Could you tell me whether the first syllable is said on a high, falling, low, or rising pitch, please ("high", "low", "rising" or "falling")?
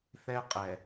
high